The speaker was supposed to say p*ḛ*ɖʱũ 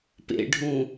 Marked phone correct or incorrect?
correct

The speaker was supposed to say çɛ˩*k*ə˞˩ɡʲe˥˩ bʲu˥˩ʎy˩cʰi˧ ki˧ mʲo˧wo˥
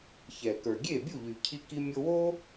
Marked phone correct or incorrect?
correct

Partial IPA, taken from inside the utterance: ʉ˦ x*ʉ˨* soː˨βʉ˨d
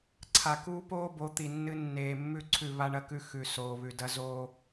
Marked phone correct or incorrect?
correct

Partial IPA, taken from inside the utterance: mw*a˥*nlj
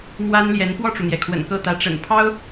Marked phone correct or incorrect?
correct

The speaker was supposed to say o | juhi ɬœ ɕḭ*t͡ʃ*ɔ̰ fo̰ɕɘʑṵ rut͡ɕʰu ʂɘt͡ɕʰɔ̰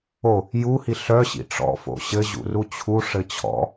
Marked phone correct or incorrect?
incorrect: ʈ͡ʂ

